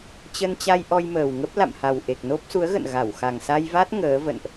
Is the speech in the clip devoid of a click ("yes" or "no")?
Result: yes